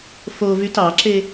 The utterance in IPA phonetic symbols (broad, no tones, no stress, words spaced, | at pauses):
fovyt ɑǁe